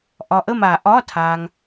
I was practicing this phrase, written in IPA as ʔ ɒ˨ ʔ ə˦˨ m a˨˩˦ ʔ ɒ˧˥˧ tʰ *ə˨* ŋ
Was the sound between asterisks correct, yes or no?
no